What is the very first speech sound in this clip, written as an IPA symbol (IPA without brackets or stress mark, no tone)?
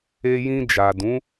e